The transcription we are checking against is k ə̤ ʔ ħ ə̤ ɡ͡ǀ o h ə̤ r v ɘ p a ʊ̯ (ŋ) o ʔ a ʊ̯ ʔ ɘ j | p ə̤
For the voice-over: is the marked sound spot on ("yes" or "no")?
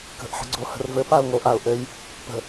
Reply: yes